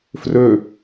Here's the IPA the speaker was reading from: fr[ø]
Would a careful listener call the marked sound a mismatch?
no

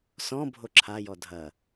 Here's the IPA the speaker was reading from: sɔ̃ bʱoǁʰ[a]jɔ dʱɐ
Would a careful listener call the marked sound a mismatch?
no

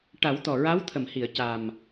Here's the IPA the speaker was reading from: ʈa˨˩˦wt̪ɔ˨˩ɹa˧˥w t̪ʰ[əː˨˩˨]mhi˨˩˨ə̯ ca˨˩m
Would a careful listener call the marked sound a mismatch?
yes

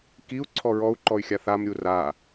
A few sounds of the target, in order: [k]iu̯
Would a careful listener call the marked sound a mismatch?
no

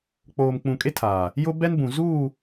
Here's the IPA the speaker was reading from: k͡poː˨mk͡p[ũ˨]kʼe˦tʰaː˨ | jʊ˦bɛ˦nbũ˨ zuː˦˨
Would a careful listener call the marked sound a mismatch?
no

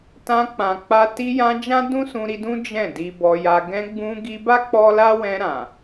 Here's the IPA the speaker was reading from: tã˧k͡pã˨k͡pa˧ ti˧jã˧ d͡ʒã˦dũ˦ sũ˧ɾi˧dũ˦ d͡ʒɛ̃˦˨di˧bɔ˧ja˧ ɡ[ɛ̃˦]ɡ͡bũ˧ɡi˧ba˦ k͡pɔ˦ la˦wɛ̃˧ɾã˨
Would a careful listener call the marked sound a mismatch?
yes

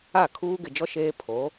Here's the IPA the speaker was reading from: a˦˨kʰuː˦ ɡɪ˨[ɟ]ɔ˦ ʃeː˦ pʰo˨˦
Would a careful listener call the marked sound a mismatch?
yes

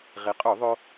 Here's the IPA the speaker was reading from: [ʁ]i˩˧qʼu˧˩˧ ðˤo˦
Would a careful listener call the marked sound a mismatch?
no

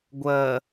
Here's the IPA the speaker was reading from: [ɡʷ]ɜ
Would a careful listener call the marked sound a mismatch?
no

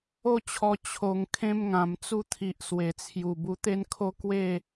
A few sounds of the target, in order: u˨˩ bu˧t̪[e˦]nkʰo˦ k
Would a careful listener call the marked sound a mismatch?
no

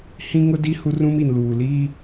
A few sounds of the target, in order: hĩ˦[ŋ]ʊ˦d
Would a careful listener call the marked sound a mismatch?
no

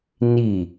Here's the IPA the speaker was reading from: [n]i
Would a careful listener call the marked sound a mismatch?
no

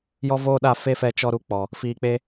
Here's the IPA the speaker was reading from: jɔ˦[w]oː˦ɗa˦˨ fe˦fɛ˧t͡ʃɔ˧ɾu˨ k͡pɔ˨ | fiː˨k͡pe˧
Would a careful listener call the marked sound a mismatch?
yes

